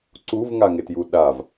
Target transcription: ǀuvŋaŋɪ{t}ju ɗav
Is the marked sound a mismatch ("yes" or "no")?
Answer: no